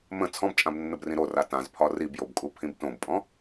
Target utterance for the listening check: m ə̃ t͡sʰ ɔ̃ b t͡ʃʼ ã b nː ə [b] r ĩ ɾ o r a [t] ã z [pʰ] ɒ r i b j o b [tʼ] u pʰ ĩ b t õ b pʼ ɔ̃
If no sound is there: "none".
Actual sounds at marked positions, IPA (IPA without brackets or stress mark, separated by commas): b, t, pʰ, kʼ